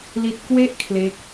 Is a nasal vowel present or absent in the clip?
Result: absent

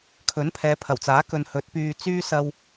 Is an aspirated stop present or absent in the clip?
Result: present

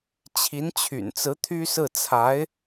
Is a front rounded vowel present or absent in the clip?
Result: present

